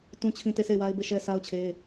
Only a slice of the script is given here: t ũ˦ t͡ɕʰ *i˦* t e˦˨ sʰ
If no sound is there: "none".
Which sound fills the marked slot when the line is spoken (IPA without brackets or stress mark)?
ĩ˦